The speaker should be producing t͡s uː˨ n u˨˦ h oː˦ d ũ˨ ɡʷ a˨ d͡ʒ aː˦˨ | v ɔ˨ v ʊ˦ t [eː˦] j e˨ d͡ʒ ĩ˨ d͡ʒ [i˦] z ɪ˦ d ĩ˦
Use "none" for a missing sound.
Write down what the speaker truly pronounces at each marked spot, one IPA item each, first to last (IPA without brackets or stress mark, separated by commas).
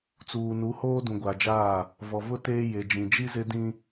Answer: eː˦, i˦